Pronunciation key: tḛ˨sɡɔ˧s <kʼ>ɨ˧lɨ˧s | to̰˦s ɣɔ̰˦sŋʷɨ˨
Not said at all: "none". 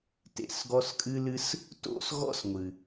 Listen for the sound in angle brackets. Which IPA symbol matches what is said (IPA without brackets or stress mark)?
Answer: kʼ